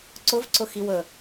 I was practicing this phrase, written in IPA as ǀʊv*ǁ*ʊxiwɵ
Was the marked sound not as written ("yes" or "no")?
yes